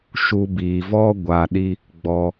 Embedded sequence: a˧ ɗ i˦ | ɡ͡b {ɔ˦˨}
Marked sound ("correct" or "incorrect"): incorrect